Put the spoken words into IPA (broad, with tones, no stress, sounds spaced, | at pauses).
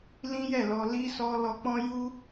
l ĩ˦ j ɛ˦˨ l ɔ˧ l i˦ s ɔ˧ l ɔ˧ k͡p ɔ̃˦ j u˦